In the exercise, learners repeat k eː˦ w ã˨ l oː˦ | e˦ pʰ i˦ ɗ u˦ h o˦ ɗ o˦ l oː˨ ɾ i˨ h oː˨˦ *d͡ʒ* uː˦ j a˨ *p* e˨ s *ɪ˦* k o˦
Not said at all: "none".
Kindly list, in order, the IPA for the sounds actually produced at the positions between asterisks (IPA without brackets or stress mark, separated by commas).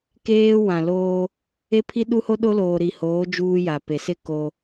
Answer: d͡ʒ, p, ɪ˦